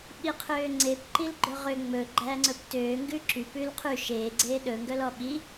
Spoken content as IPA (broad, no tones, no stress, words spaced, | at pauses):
ɓiqʰøːŋ͡ǀep ǃilɡ͡ǃɵʁø ŋ͡mɵ ɡ͡ǃæːŋ͡ǀɵptøː ŋɡʉǁy pʉlqʰʉ ʃeː ɡ͡ǀeːɗɵ ŋɡœlɔɓi